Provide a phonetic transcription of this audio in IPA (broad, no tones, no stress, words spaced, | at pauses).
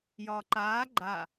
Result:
jɒːǃaː ɡ͡ǃa